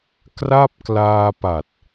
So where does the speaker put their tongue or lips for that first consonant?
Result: velum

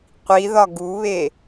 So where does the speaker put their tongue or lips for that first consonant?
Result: uvula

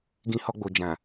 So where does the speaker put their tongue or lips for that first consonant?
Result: velum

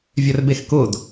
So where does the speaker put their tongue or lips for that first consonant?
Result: lips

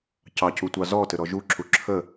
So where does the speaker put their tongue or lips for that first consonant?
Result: palate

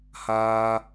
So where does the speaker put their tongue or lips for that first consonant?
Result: throat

